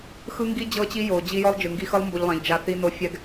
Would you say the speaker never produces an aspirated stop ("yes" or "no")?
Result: yes